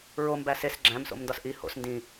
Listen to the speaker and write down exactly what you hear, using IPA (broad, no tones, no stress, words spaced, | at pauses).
ɹom bæses ɡ͡ǁæ̃mso̰mndɒs ʔi ho̰s ndĩ